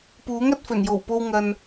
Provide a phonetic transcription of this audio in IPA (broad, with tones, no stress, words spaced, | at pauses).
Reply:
puː˨˥ŋɐ˧t̚fɵ˨˩njo˨˩w po˧wŋɐ˨n